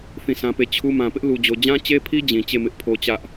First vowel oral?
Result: no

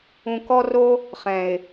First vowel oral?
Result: no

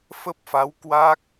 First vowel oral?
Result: yes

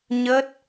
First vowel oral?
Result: yes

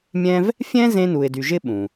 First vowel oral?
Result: no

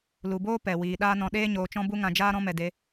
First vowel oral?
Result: yes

